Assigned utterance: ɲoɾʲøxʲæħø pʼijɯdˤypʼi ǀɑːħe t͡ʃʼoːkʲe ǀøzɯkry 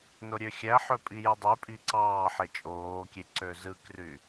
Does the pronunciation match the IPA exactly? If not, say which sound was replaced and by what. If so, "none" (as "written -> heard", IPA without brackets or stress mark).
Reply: ɲ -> n